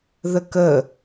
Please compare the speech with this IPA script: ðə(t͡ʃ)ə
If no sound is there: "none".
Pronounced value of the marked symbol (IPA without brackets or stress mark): k